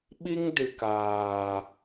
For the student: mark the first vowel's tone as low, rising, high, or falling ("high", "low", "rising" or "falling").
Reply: high